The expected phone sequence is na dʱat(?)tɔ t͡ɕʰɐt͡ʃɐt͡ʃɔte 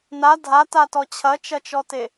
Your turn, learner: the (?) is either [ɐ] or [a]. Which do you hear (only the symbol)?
a